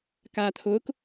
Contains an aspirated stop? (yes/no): yes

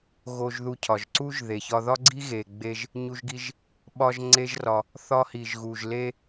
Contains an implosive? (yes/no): yes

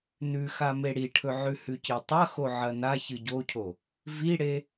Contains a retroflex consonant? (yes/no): yes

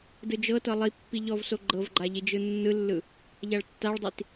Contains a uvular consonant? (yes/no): no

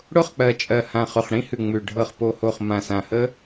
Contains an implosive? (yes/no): no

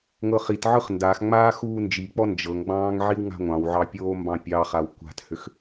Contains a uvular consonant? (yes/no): yes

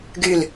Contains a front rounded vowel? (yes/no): yes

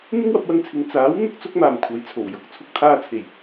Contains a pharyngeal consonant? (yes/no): no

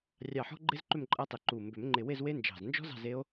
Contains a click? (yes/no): yes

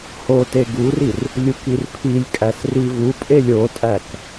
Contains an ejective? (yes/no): yes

